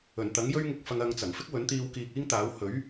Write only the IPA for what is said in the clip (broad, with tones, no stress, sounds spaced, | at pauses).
ɵ˨˩ n t̪ ɐ˨˥ ŋ j ɵ˥ ɥ ŋ ɪ˧ k̚ f ɐ˧ ŋ ɐ˧ ŋ t͡s ɐ˨˩ ŋ f ɪ˥ k̚ w ɵ˨˥ n t̪ iː˧ w k iː˧ k̚ iː˥ ŋ t̪ aː˨˥ w h ɵ˨˥ ɥ